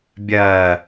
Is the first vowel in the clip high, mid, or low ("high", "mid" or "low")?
low